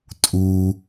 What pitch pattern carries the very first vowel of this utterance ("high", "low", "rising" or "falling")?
low